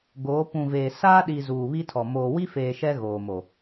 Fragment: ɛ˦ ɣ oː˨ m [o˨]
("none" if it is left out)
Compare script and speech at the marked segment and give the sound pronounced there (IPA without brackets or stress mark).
o˨